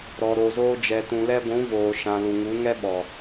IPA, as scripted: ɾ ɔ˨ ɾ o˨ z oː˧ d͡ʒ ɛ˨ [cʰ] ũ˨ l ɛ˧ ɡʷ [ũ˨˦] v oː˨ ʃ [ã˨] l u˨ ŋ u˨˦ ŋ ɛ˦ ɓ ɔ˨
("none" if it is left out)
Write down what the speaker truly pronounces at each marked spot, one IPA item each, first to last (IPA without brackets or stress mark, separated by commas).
t, ũ˨˦, ã˨